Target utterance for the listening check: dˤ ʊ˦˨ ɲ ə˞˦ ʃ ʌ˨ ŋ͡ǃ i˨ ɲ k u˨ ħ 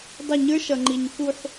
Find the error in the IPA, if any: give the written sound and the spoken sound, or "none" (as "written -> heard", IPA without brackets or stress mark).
none